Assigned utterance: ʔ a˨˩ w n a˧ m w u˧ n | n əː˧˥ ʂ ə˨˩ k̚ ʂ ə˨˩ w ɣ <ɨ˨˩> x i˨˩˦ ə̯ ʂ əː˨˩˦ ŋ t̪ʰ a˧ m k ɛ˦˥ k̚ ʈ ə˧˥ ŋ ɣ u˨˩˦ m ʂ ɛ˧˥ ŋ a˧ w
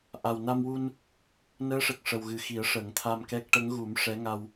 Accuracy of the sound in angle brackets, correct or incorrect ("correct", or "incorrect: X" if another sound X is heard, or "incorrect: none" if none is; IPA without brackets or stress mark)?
correct